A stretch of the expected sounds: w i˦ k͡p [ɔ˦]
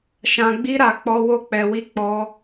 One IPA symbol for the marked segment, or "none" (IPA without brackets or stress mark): ɔ˦